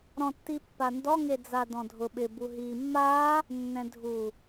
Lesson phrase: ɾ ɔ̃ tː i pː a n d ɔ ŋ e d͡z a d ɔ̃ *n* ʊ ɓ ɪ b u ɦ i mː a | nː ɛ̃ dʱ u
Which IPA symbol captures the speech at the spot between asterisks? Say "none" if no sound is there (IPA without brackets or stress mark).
dʱ